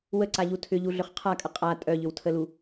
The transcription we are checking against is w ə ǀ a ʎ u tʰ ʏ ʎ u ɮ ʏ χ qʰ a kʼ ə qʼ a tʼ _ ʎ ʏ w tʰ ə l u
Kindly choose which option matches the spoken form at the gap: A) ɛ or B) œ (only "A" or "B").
B